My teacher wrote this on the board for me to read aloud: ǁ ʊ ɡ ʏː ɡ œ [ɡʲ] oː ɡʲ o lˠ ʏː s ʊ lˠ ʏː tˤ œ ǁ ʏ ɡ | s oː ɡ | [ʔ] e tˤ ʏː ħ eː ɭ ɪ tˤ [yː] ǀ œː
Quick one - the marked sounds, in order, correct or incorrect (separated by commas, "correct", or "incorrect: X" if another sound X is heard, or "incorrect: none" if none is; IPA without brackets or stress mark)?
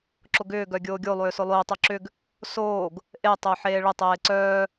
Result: correct, correct, incorrect: eː